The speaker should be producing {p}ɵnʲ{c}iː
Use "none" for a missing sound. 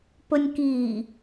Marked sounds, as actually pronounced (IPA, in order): p, k

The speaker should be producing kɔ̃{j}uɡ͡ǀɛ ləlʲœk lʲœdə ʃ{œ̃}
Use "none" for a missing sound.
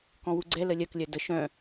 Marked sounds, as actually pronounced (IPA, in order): w, œ̃

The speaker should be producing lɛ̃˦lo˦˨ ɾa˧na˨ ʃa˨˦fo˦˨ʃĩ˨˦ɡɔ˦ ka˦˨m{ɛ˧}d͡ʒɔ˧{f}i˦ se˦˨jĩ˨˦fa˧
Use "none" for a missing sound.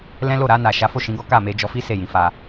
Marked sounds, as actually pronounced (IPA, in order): e˧, f

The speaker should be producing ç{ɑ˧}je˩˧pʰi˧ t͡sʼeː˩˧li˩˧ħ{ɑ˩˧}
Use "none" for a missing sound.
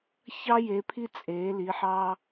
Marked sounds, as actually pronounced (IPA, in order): ɑ˧, ɑ˧

